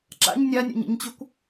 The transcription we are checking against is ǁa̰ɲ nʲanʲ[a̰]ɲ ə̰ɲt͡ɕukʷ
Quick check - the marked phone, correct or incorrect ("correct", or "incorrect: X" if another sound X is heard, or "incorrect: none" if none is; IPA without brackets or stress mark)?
correct